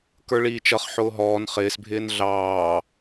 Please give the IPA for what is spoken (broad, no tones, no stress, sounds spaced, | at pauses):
k ə˞ ɭ iː t͡ʃ ʌ χ ħ ʊː ɦ ɔː n χ ɪː s bʱ ɪː n ɮ ɑː